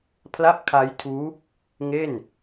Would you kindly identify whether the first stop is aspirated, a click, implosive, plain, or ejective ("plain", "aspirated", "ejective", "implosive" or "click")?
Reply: aspirated